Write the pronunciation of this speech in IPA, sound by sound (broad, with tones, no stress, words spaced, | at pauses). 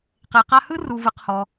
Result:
qe˨qa˦ hɯ˦ru˨vɯ˨qhɔ˨